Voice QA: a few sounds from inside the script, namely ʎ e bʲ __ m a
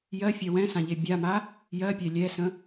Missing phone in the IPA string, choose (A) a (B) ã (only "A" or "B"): A